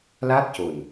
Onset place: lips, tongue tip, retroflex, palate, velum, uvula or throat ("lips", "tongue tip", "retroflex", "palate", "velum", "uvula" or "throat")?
tongue tip